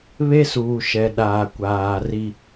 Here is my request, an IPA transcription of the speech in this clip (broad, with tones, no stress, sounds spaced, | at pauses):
β e˦ s uː˨ ʃ ɛ˨ ɗ aː˨ kʷ aː˨ r i˦